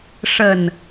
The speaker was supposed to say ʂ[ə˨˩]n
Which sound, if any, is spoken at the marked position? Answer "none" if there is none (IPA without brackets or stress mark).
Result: ə˨˩